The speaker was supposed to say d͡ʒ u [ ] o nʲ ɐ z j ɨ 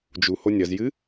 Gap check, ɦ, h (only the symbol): h